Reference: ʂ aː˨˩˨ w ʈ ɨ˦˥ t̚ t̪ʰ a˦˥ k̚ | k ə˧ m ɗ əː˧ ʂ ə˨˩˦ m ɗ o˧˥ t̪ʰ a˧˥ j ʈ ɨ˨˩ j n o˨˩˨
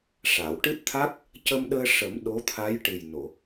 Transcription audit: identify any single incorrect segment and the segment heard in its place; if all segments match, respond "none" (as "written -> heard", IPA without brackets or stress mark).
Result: k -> c